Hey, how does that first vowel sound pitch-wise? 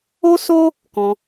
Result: high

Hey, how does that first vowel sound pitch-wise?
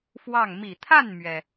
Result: falling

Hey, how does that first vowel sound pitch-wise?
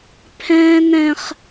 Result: high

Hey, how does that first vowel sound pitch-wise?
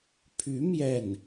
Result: rising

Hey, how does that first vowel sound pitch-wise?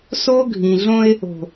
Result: high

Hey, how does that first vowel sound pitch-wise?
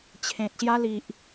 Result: low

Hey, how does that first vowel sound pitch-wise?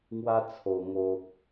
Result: high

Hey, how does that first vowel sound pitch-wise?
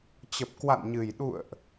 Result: low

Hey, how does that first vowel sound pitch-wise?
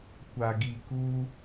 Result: low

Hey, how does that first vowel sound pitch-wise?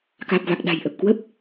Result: low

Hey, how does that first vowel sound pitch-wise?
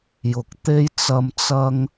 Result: rising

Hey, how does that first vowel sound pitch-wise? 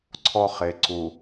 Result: high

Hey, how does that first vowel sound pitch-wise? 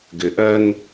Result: low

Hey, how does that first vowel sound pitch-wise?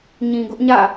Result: low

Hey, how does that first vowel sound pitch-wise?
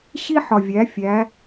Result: high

